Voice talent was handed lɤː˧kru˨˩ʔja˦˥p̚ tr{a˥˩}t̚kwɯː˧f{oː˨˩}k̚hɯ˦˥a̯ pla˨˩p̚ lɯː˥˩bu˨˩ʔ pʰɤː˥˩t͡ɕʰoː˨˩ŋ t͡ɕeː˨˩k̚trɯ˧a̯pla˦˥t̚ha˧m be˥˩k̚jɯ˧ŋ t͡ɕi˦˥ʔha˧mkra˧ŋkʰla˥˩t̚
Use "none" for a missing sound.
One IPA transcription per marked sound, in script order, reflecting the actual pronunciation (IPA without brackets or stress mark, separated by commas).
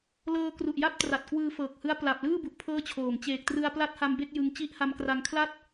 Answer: a˨˩, ɤː˨˩